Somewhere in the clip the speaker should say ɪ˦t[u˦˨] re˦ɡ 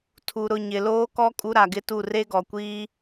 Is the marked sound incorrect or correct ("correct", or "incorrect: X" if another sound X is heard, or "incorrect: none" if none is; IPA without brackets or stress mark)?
correct